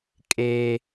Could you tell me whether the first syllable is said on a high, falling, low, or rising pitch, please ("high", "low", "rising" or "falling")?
high